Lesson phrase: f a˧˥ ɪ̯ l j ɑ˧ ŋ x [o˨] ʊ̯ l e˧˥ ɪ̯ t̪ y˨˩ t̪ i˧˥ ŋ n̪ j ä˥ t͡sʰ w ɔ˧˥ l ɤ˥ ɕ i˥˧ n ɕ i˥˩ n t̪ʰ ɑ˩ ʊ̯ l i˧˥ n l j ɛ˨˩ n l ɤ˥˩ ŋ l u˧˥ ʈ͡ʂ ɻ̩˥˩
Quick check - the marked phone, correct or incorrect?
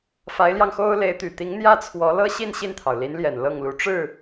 incorrect